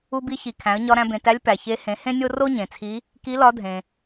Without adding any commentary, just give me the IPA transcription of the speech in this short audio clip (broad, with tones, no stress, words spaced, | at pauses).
u˧bi˧çi˩ kʰæ̃˩˧ə̯ɲɒ˧ ɾæ̃˧bẽ˩tæ˧˥lʲ pæ˩çe˧˥ hẽ˩˧hẽ˥nʲo˥ ro˥ɲẽ˩t͡sʰi˧˥ | ki˧˥lɒ˧˥ dʱẽ˩